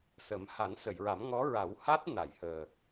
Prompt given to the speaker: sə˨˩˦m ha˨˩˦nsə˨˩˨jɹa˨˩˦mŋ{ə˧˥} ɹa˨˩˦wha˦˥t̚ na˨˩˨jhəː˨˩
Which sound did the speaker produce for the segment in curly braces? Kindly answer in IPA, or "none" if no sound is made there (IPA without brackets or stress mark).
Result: ɔ˧˥